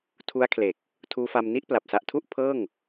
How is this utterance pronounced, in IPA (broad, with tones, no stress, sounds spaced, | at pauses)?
tʰ u˦˥ a̯ kʰ l e˨˩ k̚ | tʰ uː˦˥ f a˧ m n i˦˥ ʔ p l a˨˩ p̚ s a˨˩ ʔ tʰ u˥˩ ʔ pʰ ɤː˥˩ ŋ